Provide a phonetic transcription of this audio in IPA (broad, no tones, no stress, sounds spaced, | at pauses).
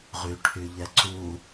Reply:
ʁ y ʈʰ y ʎ ɛ ǀ u